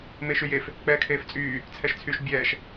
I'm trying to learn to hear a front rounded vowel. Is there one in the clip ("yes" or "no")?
yes